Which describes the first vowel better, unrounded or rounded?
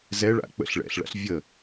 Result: unrounded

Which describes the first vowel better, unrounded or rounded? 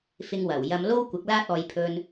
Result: unrounded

